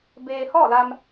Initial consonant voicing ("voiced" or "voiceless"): voiced